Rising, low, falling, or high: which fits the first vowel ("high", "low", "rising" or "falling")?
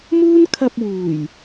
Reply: high